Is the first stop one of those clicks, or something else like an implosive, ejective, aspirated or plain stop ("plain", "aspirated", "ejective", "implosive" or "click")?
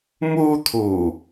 aspirated